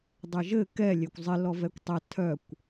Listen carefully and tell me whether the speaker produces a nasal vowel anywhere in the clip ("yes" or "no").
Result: no